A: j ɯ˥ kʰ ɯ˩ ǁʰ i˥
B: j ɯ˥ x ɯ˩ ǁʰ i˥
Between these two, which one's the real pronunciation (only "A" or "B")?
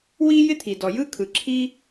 A